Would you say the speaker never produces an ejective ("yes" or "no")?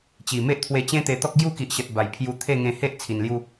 yes